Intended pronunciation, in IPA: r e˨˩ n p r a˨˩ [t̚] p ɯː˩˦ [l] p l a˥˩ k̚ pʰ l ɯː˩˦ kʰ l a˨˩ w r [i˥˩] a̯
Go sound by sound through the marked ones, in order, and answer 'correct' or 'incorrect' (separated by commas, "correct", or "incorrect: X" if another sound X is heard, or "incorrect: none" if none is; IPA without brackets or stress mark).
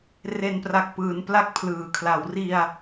incorrect: k̚, incorrect: n, incorrect: i˧